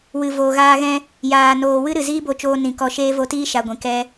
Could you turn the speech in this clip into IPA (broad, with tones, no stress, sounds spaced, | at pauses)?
w ɨ˨ v oː˨ ɣ aː˧ ɣ ɛ̃˧ | j aː˨ n oː˨ w ɨ˦ ɾ ɨ˨ z iː˦ b o˧ t͡ʃ oː˧ n ĩ˨ k ɔ˧ ʃ eː˦ v o˧ t iː˦ ʃ a˧ ɡʷ ĩ˨ k ɛ˧